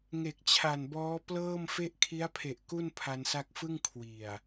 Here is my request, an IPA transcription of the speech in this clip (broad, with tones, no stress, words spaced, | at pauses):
ŋe˨˩k̚t͡ɕʰa˨˩nbɔː˦˥ plɤː˥˩mfe˥˩ʔ kʰi˦˥a̯pʰe˨˩ʔ ku˥˩npʰa˧nsa˦˥k̚ fɯ˥˩ŋ kʰwi˨˩a̯